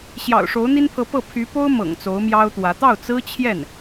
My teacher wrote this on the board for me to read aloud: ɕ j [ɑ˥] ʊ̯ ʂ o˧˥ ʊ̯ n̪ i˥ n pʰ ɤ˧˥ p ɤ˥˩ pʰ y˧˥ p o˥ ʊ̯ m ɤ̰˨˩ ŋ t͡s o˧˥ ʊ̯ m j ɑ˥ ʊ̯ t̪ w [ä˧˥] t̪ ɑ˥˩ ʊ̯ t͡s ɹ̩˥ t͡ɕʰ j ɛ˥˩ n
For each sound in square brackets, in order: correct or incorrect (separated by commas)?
incorrect, correct